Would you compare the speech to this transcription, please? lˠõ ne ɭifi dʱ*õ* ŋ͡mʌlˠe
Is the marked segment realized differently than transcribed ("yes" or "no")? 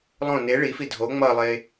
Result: yes